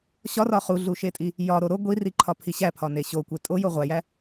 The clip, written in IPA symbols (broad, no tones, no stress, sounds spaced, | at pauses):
ɕ ɒ r ɒ χ u ɮ u ʃ e tʼ i | j ɒ ɾ o ɾ o ɡʷ i r i ǃʰ ɒ pʰ i ɕ æ pʰ ɒ n e ɕ o kʷ e tʼ o j o ʁʷ æ j æ